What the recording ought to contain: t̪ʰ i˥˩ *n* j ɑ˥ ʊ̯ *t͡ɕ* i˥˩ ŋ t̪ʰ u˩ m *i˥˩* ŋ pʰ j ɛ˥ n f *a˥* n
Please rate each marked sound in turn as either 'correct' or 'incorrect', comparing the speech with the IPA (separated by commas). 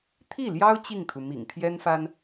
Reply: incorrect, correct, incorrect, correct